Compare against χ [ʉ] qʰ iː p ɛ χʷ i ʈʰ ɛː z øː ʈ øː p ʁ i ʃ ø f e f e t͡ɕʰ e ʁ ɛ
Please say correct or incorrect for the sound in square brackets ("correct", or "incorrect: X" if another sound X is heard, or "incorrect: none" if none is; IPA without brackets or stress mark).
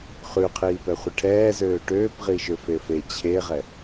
correct